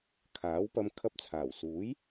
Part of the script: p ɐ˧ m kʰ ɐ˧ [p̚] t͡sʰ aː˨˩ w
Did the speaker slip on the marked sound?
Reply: no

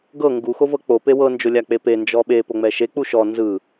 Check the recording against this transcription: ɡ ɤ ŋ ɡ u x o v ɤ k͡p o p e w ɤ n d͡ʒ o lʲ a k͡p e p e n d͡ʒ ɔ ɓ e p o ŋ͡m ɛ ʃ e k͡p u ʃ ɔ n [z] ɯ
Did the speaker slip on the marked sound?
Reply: no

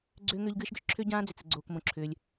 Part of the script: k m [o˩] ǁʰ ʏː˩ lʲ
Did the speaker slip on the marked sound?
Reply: yes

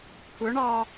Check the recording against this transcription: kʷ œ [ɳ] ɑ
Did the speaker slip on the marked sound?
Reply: no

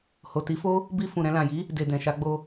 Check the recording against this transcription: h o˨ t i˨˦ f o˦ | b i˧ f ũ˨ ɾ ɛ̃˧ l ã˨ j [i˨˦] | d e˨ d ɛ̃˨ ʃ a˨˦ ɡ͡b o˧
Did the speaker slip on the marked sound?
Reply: no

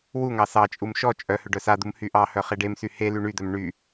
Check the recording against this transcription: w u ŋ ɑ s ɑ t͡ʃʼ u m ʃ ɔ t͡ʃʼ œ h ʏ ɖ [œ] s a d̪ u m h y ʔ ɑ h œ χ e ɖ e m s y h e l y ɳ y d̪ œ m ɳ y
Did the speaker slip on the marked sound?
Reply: no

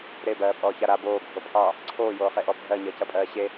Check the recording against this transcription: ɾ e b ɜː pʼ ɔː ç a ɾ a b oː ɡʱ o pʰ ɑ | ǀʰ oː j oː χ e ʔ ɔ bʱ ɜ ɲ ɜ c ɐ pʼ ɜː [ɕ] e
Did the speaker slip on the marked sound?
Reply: no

